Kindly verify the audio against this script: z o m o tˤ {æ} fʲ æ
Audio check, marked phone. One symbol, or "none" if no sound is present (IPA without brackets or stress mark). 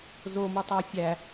æ